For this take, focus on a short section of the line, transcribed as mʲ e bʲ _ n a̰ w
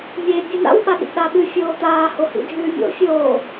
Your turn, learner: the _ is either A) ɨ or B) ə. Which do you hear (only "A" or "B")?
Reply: A